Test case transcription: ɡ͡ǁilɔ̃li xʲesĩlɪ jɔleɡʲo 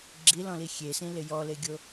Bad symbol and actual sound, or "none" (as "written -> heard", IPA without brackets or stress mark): none